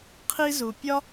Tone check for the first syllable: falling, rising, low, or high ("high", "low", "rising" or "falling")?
high